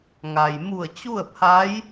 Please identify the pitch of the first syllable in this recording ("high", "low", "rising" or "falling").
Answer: low